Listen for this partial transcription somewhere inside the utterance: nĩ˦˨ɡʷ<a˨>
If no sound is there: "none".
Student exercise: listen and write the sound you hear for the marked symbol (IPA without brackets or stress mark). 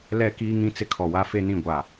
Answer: a˨